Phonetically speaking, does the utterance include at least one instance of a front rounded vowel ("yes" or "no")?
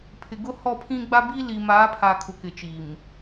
no